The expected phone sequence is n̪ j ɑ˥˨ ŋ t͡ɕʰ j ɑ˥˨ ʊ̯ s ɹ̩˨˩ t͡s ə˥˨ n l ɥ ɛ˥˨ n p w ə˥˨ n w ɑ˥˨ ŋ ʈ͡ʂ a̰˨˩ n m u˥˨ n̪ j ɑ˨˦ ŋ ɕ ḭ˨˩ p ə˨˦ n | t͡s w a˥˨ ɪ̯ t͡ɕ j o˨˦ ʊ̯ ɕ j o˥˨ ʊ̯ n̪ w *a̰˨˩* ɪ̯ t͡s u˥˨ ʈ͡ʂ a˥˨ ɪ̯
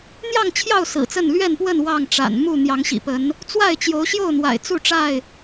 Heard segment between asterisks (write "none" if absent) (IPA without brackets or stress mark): a̰˨˩